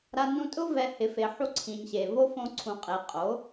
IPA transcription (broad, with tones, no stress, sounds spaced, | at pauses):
ɾ a˧ n ũ˧ tʼ ʊ˦ v ɛ˧ h ɪ˨˦ f e˨ ħ u˧ ǀʰ ĩ˨ ɲ ɕ e˨ v o˦ f õ˧ ǀʰ ũ˨ qʼ e˨ qʼ o˨˦